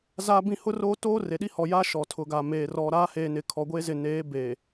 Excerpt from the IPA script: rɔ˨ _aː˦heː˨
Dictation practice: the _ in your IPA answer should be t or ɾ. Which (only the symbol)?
ɾ